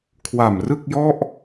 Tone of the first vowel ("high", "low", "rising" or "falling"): low